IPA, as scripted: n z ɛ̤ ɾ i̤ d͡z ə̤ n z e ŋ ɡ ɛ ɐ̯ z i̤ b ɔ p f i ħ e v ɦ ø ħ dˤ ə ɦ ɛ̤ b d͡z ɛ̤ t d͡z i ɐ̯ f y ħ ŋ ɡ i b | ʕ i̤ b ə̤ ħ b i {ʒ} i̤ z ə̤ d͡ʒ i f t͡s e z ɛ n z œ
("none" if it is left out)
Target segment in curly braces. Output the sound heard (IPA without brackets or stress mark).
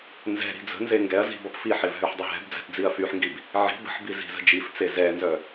z